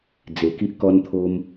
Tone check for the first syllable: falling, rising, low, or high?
low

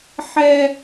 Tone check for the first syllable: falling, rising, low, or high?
high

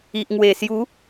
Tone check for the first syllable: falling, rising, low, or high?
low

